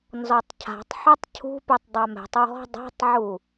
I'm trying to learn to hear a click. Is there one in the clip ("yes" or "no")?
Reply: no